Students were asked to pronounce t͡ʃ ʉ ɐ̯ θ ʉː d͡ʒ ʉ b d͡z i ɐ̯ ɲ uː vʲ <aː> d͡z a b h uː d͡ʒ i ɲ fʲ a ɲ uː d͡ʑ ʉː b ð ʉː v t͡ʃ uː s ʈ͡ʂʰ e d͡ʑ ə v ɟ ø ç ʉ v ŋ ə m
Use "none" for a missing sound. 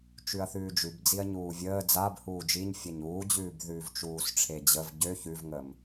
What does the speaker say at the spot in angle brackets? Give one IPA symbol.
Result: əː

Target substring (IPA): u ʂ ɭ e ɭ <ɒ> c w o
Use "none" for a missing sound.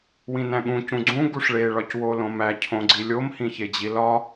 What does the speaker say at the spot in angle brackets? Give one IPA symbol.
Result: ɒ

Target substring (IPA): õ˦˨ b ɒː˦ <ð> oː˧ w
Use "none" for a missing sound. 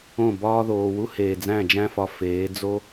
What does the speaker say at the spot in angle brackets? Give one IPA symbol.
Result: ð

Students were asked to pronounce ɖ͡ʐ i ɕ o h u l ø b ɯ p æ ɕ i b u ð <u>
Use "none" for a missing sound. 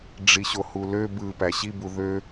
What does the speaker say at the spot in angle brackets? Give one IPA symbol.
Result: ø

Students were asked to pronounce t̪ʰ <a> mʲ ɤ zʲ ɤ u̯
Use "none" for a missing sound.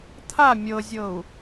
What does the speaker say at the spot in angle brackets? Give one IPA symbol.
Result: a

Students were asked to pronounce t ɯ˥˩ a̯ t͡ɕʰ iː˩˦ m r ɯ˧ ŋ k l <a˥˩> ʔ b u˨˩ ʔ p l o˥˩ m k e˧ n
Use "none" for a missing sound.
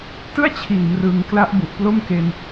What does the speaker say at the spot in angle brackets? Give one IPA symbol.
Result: a˦˥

